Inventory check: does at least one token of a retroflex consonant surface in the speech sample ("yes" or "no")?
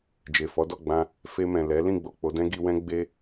no